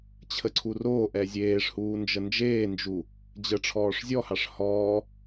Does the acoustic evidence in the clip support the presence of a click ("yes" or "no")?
yes